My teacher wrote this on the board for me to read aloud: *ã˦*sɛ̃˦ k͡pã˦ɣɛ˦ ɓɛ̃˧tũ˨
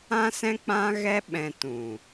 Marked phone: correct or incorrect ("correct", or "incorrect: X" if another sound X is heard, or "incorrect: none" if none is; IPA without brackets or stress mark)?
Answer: correct